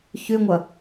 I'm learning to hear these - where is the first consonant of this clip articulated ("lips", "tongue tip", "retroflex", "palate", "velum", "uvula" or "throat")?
palate